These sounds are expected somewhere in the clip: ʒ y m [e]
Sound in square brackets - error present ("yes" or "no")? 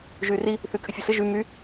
yes